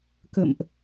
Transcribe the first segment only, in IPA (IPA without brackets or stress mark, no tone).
k